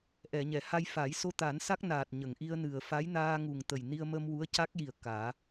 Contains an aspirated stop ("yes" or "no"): no